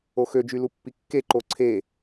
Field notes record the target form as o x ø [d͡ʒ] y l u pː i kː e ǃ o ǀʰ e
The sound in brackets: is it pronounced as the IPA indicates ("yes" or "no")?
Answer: yes